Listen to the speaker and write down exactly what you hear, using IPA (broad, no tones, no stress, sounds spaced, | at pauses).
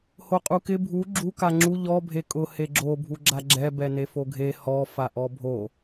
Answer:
h o qʼ u k ɪ bʱ u ɡ͡ǁ u k a ŋ͡ǁ u ʎ ɔ bʱ e kʼ ʊ h e ɡ͡ǁ o bʱ u ɡ͡ǁ a ɡ͡ǁ ɛ b ɛ n e f o ɡʱ e h ɔ f a ʔ ɔ bʱ o